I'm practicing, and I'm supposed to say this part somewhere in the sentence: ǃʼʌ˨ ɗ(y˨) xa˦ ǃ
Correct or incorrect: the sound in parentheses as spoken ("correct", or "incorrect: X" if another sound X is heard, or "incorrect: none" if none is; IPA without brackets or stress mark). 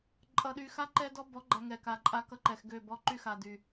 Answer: correct